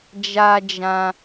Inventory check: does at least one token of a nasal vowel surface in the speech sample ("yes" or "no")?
yes